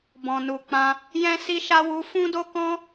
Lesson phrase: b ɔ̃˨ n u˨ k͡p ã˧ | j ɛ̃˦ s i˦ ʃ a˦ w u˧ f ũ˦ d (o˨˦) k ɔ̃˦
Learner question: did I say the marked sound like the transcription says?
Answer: no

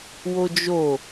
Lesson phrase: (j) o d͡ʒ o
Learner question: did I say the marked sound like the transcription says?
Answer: no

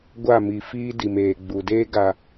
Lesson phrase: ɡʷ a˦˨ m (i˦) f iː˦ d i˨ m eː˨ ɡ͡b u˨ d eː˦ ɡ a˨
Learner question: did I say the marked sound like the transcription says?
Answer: no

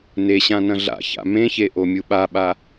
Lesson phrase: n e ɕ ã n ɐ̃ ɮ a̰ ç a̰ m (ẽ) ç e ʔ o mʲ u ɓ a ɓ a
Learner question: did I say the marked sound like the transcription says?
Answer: yes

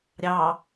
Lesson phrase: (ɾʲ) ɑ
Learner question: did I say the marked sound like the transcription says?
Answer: yes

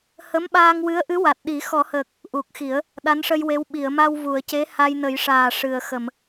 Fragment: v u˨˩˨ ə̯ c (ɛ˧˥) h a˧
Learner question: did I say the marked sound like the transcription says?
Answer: no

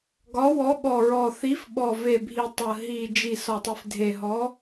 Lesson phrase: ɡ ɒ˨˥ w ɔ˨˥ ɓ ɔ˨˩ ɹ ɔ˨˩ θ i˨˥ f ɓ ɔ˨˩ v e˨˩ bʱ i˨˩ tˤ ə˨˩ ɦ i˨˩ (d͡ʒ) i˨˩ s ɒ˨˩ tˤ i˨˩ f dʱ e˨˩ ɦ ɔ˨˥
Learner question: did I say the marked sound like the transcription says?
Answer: yes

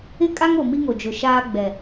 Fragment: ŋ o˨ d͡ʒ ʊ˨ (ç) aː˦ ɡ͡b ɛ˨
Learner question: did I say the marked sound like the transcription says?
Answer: no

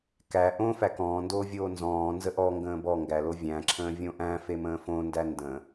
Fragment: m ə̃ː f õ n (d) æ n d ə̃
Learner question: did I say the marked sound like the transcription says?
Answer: yes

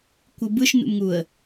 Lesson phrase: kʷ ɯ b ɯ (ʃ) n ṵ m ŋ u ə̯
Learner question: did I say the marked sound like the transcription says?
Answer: yes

